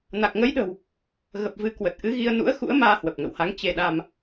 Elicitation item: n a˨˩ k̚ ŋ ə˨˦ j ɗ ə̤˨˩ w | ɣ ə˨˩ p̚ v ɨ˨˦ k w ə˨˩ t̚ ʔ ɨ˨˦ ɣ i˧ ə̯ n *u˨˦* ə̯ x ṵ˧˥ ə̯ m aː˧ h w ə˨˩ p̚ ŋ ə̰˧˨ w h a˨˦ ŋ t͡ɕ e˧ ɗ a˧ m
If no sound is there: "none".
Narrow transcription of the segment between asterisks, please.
ṵ˧˥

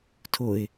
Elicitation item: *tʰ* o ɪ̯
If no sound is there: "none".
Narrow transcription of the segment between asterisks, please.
tʰ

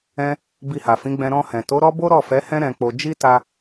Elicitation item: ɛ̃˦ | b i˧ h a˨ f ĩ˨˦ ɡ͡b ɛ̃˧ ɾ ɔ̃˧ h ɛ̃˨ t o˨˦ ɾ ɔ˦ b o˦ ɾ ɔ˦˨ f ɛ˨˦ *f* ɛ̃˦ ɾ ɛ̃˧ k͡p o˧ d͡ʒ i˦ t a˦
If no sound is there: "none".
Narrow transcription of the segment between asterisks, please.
h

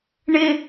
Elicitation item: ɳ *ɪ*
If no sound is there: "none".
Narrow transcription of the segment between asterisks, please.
ɪ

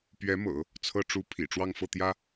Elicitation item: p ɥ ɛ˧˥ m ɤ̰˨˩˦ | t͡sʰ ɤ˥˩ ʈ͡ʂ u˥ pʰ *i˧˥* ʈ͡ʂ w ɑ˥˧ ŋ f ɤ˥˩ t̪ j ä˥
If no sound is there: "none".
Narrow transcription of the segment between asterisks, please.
ḭ˨˩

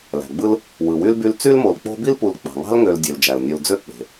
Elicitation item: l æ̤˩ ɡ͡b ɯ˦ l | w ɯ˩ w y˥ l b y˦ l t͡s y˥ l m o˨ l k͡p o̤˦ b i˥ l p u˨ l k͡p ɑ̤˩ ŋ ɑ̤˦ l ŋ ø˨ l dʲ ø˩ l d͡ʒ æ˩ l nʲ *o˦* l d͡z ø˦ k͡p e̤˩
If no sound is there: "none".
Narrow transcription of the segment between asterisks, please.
o˨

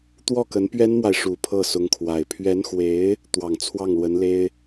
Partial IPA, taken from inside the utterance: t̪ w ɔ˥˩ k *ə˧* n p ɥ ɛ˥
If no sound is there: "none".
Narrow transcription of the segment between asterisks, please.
ə˧˥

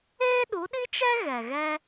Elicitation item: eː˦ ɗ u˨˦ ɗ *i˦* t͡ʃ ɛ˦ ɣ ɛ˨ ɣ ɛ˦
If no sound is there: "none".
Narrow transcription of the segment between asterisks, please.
i˦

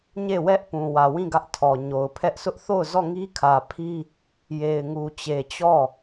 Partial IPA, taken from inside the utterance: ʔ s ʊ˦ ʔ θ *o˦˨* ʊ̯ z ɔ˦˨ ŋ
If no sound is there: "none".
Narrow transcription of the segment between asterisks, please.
o˦˨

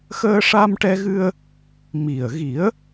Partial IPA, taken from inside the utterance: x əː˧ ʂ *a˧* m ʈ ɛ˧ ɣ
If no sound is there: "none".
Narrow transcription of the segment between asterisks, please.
a˧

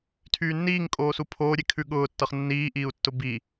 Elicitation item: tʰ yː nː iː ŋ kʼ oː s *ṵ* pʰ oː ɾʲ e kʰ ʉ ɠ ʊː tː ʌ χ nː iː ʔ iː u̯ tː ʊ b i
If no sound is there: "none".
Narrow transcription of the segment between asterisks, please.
u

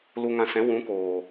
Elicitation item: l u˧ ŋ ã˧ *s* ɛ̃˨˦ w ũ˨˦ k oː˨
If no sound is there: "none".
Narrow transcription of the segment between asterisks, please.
s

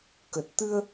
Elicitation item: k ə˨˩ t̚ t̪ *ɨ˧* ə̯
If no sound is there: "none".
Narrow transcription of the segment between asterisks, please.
ɨ˧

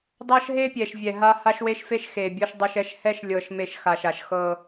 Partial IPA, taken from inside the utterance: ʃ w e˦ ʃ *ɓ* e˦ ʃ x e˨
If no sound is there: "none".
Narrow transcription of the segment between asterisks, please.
f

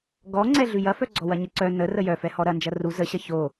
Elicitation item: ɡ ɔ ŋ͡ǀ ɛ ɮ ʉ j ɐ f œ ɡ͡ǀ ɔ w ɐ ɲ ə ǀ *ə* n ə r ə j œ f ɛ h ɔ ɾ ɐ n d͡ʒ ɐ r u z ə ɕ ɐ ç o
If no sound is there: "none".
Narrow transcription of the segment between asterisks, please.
œ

